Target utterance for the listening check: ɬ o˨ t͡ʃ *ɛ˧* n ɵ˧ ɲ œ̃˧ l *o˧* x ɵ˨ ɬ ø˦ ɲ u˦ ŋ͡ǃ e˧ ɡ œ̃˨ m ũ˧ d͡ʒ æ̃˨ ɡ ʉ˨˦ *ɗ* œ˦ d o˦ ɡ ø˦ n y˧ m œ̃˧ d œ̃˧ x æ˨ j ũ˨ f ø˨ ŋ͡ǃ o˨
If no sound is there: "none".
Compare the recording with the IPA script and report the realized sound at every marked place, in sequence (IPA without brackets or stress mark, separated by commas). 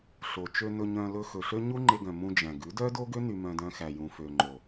ø˧, ɵ˧, d